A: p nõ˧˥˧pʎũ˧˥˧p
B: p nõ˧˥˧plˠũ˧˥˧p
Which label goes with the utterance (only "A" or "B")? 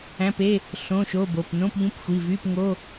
A